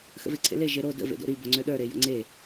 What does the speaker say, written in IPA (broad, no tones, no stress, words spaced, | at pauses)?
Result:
xə̰veǀʰḛle ʒeɾo də̰ vḛdo̰ɾi boŋ͡ǀøɗə˞ ɾejə̰ŋ͡ǀe